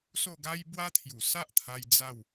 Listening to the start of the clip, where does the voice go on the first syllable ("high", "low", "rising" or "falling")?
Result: falling